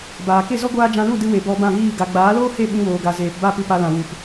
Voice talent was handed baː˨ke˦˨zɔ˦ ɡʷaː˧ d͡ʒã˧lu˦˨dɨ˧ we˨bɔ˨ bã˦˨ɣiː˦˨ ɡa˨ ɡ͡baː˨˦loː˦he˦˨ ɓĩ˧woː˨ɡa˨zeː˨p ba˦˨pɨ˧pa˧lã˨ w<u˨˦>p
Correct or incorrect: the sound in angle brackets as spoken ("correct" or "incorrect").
incorrect